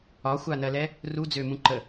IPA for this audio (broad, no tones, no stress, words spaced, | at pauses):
ɒxʷanɜlɛ | rud͡zømũ ǃə